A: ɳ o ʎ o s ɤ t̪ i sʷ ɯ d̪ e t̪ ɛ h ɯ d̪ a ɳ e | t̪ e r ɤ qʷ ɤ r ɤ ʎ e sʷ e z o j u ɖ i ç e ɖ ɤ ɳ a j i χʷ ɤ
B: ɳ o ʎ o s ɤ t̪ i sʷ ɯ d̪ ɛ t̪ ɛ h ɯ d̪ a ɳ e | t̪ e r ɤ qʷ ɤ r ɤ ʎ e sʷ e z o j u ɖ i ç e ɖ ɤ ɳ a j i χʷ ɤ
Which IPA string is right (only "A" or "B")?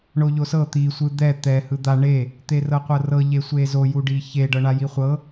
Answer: B